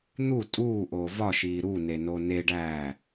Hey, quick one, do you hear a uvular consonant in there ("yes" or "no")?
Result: no